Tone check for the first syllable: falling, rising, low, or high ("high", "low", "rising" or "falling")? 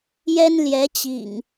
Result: high